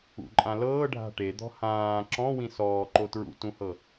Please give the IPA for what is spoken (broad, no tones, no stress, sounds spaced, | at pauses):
ṵ ǃʼ ã l ɤː ɖʱ a̤ ʈ e d̪ ɔ̤ h ãː ǁ ɔ̃ w ĩ s ɔː ǃ o t ɹ ṵ t ũ h ɤ